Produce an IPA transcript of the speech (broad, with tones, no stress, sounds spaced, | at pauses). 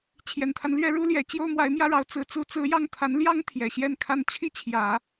t͡ɕʰ j ɛ˨˩ n t̪ʰ a˦ n l ɥ ɛ˥ ɻ u˥ l j ɛ˨˩ t͡ɕ j o˥ ʊ̯ m w a˧˥ ɪ̯ m j ä˥ ɻ ɑ˧˥ ʊ̯ t͡s ɹ̩˧˥ t͡s u˧˥ t͡s ɹ̩˧˥ j ɑ˥˩ ŋ t̪ʰ a˧˥ n l j ɑ˥ ŋ t̪ʰ j ɛ˨˩ ɕ j ɛ˥˩ n kʰ a˥ n t͡ɕʰ i˥˩ t͡ɕʰ j ä˨˩˦